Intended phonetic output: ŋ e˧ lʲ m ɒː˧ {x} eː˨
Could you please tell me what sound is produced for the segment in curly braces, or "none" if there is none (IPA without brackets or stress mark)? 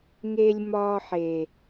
ħ